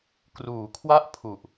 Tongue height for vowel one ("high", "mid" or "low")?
high